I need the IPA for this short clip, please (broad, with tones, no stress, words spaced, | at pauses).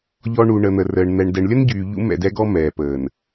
ʎɔ˦ ɳu˨ɳə˨n̪ə˨rəː˨ɳ n̪ɛ˨ɳ dɛ˨ɳlʲə˦nɟyː˨ ʎṵ˦mɛ̰˦˨dɛ˦ɡɔ˦ mɛː˨pəː˨n